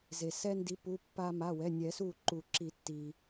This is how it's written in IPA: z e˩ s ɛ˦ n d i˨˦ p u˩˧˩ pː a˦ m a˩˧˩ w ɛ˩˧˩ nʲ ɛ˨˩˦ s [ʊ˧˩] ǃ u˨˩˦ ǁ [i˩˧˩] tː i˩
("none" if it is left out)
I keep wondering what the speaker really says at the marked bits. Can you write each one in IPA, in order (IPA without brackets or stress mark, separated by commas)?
u˧˩, i˨˩˦